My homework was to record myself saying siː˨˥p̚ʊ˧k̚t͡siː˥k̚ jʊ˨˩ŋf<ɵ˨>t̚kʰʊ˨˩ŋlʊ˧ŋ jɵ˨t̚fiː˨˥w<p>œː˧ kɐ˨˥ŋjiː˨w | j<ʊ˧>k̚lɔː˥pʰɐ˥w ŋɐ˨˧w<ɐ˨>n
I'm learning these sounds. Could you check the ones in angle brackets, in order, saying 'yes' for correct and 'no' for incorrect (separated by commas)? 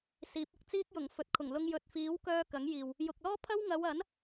yes, no, no, no